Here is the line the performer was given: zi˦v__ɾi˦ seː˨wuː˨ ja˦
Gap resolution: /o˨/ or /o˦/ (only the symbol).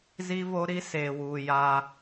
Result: o˦